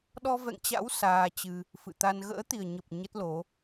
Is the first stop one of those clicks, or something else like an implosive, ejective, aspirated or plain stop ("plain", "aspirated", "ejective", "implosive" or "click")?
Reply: implosive